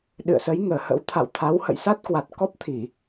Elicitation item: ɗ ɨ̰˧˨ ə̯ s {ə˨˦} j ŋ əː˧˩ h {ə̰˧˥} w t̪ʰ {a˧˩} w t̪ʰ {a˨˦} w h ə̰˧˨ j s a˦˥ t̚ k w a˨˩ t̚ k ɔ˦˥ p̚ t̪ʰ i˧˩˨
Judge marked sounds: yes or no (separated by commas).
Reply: yes, yes, no, yes